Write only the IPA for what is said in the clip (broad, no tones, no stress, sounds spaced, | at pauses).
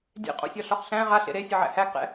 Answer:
dʲ ɛ̰ qʼ o̰ sʲ ɒ ɬ ɒ χ ɬ æ̃ ʁ a ɬ ḛ ɾ e sʲ ʌ ʕ æ̰ h æ ɡ q ɛ̰